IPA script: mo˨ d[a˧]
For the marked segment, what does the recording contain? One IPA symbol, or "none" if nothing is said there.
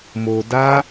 a˧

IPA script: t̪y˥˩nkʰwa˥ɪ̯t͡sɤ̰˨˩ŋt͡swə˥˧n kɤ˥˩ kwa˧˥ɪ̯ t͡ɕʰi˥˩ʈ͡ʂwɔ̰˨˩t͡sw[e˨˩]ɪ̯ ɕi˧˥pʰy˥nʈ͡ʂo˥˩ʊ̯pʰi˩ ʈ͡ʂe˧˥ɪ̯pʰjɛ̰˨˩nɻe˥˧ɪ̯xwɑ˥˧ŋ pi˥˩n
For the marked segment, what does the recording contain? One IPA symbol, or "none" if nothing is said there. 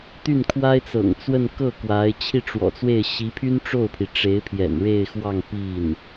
e˥˩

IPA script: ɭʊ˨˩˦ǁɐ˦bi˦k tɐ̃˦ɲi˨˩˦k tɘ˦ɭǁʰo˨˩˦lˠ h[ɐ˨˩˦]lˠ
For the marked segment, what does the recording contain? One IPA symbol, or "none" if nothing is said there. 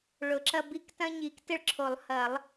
ɐ˨˩˦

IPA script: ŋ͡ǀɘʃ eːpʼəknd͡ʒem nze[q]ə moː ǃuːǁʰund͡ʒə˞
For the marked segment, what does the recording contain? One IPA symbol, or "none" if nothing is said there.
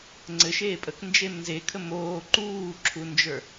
kʰ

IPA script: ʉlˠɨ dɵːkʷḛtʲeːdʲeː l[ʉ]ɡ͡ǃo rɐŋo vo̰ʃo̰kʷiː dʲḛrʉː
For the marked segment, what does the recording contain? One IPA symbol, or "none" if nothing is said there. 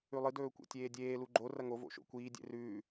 u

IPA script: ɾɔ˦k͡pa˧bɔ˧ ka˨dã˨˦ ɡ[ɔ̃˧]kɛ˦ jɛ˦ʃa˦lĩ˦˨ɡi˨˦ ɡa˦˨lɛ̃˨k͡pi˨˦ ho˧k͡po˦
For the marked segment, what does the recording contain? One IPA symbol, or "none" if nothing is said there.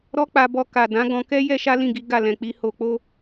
ɔ̃˧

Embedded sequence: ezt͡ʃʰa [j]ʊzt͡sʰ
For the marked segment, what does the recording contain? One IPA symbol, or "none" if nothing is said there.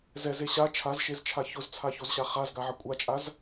ç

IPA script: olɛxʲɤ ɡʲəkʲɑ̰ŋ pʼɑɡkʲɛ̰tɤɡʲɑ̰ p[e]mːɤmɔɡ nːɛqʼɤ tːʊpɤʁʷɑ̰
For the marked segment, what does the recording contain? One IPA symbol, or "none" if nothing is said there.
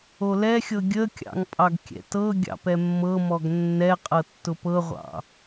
ɛ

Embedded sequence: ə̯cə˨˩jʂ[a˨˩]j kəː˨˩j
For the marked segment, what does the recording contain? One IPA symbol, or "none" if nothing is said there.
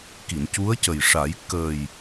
a˨˩˦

